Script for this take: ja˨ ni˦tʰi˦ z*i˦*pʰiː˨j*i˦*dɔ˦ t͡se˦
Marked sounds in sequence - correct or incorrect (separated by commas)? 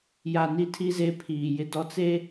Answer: incorrect, incorrect